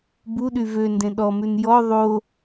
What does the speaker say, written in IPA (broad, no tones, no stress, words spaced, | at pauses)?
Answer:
buɗy vøndẽ ɗɔmʉn jɔ ðˤo